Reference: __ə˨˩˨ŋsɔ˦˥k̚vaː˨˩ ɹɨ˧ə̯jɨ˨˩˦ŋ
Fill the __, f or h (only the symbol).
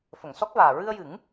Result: f